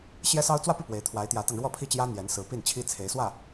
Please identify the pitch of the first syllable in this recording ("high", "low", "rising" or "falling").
high